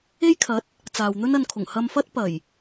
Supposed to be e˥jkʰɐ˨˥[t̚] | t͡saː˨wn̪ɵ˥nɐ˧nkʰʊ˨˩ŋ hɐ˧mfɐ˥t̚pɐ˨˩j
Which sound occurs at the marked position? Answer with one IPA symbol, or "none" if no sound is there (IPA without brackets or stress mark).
t̚